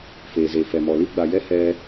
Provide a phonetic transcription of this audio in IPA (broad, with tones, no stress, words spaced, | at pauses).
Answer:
feː˨ze˨fɛ˨mɔ˨ li˦ɡ͡ba˨jɛ˦ hɛ˧